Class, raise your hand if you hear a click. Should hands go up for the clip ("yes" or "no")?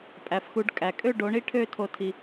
no